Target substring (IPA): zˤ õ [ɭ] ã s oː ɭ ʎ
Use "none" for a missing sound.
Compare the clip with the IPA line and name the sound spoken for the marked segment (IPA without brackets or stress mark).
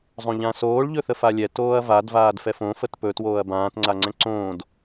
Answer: ʎ